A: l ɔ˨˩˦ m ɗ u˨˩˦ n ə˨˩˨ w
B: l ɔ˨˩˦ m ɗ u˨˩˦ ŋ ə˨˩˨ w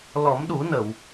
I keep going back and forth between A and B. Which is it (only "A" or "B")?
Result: A